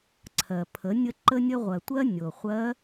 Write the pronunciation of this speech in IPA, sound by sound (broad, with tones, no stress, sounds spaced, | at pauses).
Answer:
ǀʰ ɜ˩ pʰ ə˩˧ nʲ ə˧ ǃ ə˧ nʲ ə˧ ʁʷ ɜ˩ tʷ ɜ˥ nʲ o˩ χʷ ɜ˧˥